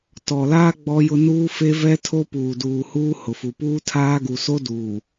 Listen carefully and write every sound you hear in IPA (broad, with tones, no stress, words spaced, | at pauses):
tɔ˨laː˦ ɡ͡bɔ˦jʊ˦ nuː˦fe˦vɛ˦tʰo˦ puː˨duː˨huː˦ hʊ˨fu˨puː˦tʰaː˦ ɡu˨so˦ duː˨